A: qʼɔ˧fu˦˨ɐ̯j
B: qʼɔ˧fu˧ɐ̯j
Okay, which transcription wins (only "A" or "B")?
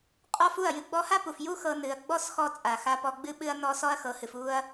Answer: A